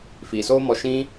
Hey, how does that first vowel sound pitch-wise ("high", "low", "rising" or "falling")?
low